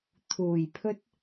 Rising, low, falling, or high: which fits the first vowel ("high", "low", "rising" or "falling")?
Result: low